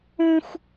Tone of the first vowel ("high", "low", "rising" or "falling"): high